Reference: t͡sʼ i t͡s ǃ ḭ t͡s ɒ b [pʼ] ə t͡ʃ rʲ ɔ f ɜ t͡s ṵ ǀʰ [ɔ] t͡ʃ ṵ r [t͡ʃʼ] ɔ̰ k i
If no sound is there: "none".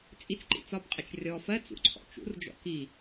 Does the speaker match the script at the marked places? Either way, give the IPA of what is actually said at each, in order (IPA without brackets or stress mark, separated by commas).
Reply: qʼ, ɔ̰, d͡ʒ